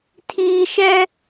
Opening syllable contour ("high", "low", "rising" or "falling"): low